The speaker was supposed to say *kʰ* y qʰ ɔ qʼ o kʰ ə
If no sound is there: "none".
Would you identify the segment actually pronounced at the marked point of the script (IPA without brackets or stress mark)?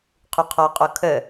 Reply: qʰ